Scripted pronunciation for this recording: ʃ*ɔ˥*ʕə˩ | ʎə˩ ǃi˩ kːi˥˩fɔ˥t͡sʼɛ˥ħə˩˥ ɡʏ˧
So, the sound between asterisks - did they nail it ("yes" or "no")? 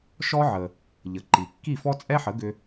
yes